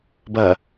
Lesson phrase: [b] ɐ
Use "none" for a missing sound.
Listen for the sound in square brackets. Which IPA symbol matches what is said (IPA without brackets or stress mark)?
b